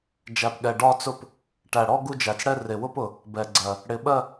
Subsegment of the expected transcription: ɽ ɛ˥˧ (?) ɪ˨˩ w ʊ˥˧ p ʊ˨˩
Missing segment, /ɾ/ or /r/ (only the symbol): r